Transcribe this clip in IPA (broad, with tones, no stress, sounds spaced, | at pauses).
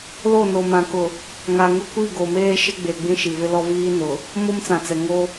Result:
l o˦˨ n o˨ m ã˨ k ʊ˨ | ŋ a˨ ŋ ʊ˦ kʷ i˦˨ ɡ o˨ m eː˦ ʃ ɪ˦ ɡ͡b e˨ ɡ͡b ĩ˦ ʃ i˨ v ɪ˦ l ɔ˦ v iː˦ n ʊ˨ | m o˦ m t͡s ã˨ t͡s ɛ˨ ŋ o˦